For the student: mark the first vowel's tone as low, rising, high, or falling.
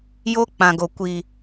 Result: high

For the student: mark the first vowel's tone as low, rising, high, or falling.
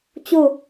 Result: falling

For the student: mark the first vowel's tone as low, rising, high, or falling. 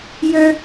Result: high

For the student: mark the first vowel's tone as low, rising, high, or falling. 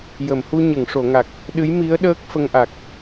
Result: low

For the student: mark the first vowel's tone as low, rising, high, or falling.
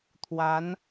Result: rising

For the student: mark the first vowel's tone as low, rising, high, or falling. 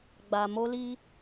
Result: low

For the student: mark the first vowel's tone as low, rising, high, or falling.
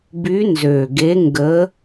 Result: rising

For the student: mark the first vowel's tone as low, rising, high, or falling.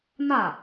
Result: falling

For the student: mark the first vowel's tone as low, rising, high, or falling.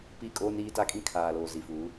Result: falling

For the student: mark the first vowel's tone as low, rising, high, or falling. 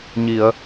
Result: low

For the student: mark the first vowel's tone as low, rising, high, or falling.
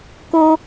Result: high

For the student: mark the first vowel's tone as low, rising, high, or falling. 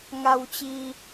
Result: low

